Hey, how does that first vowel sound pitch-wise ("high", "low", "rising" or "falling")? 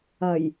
low